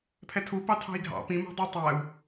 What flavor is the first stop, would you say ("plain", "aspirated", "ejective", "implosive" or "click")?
aspirated